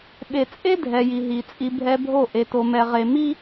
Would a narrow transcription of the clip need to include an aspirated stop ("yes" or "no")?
no